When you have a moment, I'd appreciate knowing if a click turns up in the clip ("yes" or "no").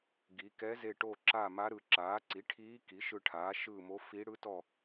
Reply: yes